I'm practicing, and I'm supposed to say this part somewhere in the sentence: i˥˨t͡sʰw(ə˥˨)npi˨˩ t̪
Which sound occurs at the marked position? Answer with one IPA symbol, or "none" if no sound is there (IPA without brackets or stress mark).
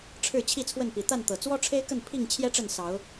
ə˥˨